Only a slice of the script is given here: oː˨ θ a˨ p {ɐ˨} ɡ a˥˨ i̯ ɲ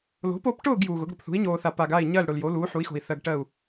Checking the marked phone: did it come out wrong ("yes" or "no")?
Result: yes